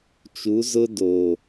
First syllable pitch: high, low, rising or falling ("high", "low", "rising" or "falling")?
rising